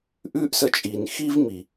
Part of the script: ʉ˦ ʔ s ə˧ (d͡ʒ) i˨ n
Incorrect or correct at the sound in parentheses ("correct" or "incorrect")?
incorrect